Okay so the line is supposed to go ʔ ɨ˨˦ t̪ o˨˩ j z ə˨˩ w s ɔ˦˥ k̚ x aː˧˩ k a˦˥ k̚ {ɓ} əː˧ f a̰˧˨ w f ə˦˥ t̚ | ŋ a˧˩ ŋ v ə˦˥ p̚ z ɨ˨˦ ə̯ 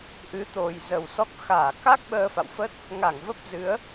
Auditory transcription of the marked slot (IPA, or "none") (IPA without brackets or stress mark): ɓ